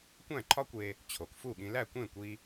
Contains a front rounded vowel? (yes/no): no